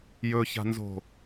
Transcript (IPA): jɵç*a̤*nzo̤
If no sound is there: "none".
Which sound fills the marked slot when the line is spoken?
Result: a̤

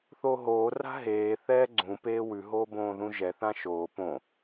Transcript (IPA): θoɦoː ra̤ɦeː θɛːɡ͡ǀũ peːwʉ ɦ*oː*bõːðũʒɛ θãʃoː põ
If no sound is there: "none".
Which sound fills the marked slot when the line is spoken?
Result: oː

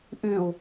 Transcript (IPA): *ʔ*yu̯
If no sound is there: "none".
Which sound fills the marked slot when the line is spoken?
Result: ʔ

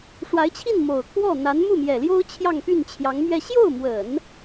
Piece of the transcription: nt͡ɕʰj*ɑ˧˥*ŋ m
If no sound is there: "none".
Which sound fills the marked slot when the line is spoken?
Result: ɑ˧˥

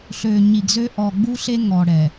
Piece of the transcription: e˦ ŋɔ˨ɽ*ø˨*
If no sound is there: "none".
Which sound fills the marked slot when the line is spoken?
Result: ɛ˨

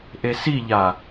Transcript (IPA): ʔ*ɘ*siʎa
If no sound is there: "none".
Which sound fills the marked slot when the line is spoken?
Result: e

